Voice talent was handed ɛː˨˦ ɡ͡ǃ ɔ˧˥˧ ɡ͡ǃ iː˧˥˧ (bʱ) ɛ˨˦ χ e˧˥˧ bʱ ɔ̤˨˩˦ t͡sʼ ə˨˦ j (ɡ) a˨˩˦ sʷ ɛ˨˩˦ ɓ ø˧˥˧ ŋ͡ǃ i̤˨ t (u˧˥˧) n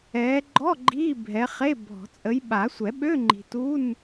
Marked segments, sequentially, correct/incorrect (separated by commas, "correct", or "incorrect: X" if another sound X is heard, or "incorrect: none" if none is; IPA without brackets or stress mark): correct, incorrect: ɓ, correct